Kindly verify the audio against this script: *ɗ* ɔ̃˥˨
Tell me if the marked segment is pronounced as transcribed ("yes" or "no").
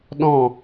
yes